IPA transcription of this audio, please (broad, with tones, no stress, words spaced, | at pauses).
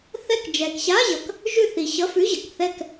θɛ˦˨kd͡ʒɛ˨k ɕa˧˥˧ʑʌ˨k | ʒʉ˦˨θi˨ ɕʌ˧˥˧fʉ˧˥˧ʑʌ˨k θɛ˦˨k